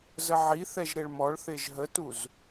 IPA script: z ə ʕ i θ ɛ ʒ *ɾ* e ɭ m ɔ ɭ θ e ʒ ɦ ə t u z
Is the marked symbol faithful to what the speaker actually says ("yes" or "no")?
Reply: yes